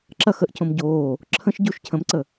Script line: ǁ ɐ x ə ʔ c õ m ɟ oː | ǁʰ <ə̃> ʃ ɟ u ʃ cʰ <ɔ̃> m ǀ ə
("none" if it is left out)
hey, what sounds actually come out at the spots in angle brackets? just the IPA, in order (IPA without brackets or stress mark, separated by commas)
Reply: ə̃, ə̃